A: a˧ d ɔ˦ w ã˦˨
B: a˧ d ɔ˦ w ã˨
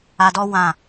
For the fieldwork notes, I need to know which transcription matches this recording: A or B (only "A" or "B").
A